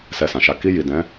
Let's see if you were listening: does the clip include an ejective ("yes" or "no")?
no